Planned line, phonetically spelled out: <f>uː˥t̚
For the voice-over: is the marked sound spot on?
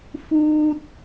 yes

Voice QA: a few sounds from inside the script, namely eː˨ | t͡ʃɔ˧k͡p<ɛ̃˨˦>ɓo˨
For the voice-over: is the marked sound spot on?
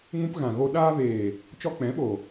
yes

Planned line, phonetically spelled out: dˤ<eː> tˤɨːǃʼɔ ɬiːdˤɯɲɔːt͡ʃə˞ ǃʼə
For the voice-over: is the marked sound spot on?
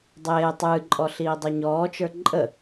yes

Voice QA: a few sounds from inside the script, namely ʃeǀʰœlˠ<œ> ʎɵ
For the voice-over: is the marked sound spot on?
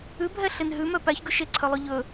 no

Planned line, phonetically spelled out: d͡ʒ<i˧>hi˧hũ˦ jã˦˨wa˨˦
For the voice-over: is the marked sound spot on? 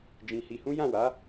no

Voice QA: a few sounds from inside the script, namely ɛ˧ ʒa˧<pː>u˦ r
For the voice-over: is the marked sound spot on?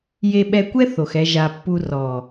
yes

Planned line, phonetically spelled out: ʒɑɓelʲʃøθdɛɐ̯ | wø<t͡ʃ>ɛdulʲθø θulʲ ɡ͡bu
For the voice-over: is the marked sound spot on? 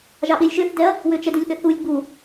yes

